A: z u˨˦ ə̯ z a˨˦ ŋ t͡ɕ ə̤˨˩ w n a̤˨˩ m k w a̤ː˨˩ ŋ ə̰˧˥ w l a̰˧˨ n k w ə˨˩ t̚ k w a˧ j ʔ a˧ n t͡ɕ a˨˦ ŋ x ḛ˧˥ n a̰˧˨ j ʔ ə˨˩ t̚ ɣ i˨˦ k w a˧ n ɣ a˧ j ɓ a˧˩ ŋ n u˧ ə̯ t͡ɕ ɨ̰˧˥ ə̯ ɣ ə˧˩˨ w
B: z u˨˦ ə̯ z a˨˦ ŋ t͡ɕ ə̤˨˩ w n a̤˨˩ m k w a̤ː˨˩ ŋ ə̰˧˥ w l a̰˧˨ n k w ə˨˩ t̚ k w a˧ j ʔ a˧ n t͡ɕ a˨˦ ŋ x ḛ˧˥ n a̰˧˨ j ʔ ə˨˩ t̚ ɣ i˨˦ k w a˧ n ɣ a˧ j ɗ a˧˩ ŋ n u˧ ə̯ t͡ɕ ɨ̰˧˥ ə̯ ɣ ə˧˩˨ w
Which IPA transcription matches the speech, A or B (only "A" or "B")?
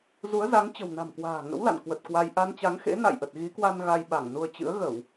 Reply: A